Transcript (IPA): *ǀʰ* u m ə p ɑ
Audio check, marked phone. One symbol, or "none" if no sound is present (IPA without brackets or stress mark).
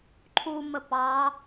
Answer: ǃʰ